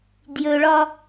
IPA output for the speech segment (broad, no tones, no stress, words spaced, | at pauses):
djɵɭɒ